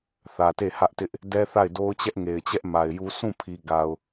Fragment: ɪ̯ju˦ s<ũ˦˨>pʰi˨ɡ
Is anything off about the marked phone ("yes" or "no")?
no